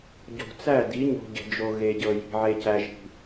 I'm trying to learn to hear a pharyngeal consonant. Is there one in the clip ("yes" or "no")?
yes